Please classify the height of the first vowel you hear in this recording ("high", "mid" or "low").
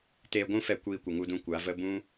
mid